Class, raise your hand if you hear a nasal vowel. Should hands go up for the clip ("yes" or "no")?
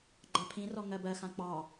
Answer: yes